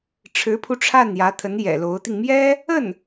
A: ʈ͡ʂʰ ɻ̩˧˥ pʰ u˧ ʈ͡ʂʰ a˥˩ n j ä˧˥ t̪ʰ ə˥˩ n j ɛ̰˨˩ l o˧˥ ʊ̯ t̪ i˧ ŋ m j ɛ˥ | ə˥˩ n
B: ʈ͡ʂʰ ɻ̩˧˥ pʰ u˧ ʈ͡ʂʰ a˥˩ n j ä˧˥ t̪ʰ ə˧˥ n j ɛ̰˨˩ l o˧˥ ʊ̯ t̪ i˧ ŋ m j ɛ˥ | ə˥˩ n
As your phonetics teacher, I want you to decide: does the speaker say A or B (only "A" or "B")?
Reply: B